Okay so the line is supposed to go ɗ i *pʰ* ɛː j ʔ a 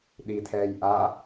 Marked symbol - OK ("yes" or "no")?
no